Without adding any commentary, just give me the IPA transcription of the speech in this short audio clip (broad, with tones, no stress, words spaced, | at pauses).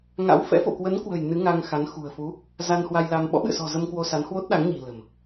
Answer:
ŋa̰˧˥wfɛ̰˧˥ fo̰˧˨kwə˨˦nkwə̤˨˩j nɨ˨˦ ŋa˧ŋxa˨˦n xṳ˨˩ə̯fu˨˦ | za˧nhwa˧jla˧m ɓɔ̰˧˥ɓɨ̰˧˨ə̯sɔ̤˨˩ zə˧mkwo˧ sa˨˦nhwo˦˥t̚ɗa˨˦ŋɲi̤˨˩ lə̤˨˩m